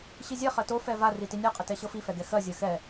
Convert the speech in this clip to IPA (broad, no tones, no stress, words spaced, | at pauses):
ɕizʲɛ χɜto fɛva ritinʲa qʼətɛɕɤfi fɛɡɛxɜ zʲɜxɛ